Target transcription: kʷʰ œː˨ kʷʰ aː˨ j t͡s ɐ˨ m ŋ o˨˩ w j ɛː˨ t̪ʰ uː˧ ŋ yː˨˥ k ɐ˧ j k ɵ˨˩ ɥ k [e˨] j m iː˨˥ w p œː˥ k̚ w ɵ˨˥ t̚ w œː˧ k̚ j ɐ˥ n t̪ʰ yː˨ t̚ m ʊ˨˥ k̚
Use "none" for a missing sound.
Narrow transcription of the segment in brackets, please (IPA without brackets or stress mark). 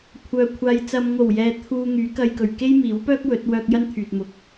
e˥